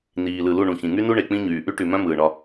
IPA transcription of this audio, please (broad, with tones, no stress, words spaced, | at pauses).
niː˨lɯ˨ lu˦˨ɳũ˨ çĩ˨ŋy˦nu˦ ɳe˨k͡pĩ˦ɲyː˨ ʔy˦ʈy˨mœ̃˦ mɯː˨ɳɒ˦